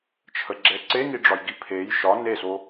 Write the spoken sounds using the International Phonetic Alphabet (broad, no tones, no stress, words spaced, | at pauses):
t͡ʃʰəɡ͡ǁɛ ǀeŋiɖ͡ʐɒjɡi pʰej ʃɒ neso